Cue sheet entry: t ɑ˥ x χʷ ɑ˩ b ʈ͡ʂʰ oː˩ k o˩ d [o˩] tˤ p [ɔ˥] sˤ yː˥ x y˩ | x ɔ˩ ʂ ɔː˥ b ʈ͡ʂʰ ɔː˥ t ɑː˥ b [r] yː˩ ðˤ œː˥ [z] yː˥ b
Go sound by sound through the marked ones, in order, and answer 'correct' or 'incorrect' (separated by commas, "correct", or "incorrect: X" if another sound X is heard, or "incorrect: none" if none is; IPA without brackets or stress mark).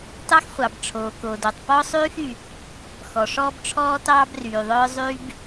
correct, correct, correct, incorrect: zˤ